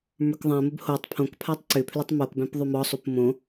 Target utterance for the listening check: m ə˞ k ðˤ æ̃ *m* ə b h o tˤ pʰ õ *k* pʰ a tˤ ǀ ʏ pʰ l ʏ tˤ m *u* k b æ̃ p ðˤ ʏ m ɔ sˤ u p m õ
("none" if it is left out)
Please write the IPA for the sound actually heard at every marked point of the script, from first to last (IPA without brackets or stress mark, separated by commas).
m, k, o